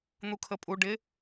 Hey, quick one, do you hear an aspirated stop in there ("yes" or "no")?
yes